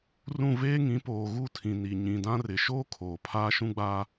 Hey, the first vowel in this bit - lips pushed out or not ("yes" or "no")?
yes